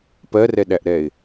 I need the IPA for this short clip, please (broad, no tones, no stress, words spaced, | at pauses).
pɜrɛɗæʔɾɛɪ̯